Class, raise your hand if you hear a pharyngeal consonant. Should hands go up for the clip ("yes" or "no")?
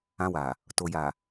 no